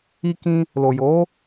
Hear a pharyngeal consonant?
no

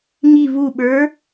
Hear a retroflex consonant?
no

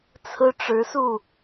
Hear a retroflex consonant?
yes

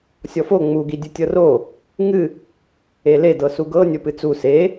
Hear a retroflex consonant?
no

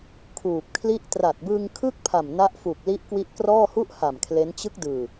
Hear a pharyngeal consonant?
no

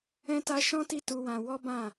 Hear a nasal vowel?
yes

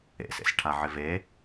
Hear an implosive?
no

